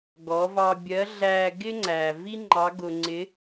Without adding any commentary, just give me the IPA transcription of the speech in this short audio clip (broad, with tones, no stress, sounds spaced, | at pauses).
ɡ ɔ˩˧ v ɑ˧ bʲ ɜ˧˥ ɮ æ˧ ɡ ɪ˥ ŋ͡ǀ æ˩ v i˥ ŋ͡ǃ ɑ˧˥ ɡ ʊ˧ ŋ͡ǀ ɪ˧˥